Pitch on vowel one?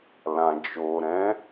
low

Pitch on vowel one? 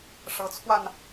rising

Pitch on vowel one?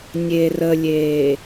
low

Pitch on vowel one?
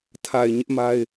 low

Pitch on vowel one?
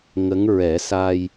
rising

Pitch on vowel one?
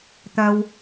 high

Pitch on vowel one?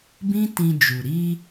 high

